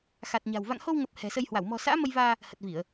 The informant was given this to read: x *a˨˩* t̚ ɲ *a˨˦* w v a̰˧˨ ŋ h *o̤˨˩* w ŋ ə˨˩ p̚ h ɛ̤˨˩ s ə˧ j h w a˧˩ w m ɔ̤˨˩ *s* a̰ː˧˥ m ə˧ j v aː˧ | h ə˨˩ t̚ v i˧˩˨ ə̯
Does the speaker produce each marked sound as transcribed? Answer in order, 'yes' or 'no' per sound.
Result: yes, no, no, yes

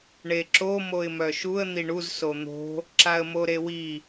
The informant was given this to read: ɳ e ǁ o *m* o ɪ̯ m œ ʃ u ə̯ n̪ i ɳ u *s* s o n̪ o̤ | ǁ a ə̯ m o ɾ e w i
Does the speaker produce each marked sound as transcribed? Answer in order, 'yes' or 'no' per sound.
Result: yes, no

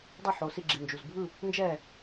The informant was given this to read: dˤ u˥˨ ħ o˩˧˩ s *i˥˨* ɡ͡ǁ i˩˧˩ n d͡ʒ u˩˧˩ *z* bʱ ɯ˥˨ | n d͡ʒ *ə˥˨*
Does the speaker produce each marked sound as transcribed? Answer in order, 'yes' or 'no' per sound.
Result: yes, yes, no

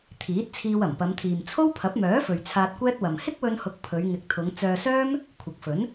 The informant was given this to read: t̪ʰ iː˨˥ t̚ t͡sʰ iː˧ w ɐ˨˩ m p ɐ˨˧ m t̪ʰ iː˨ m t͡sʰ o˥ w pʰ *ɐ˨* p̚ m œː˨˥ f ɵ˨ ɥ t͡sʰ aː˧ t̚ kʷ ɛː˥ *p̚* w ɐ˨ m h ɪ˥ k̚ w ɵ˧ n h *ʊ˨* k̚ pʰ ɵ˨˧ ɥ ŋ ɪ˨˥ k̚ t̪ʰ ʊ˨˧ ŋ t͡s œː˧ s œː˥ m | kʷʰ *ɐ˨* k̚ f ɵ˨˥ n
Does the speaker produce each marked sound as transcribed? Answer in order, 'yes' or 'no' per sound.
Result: no, no, no, yes

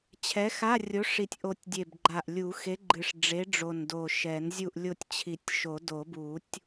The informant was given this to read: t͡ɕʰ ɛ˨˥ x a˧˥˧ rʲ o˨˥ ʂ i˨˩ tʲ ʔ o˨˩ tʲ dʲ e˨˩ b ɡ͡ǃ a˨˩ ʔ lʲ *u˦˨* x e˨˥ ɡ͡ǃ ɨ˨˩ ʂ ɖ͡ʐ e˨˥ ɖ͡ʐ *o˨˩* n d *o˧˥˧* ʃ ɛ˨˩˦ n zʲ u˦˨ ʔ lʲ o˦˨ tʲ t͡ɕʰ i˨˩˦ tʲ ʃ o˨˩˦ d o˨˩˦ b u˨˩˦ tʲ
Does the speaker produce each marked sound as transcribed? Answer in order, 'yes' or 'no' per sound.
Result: no, yes, no

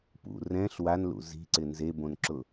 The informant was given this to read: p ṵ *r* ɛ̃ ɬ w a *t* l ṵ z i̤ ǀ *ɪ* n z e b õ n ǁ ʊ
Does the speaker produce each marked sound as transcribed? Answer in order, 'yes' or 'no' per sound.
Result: yes, no, yes

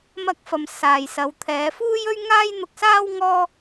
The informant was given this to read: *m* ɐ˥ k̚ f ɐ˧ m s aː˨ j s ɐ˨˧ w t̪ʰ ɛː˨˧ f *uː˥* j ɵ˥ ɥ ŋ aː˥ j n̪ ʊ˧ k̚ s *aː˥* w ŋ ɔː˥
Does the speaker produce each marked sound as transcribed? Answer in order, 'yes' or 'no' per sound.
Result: yes, yes, yes

